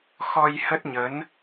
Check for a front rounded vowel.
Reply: absent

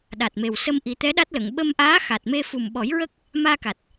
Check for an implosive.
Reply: present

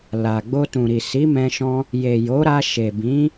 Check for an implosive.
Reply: absent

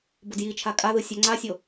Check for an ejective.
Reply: present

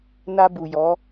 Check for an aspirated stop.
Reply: absent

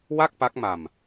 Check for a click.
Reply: absent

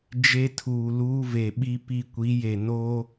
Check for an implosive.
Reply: present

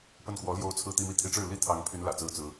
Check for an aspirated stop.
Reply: present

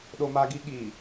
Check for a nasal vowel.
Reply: absent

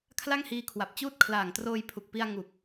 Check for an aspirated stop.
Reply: present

